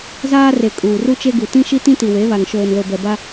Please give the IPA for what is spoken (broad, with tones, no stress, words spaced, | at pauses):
zaː˦re˨ kʼuː˨ru˦t͡ʃe˦ɡu˨ tĩ˦ʃi˦tĩ˦ti˨ we˨˦βa˨ŋ ʃoː˨nlo˨ bɛ˨ba˦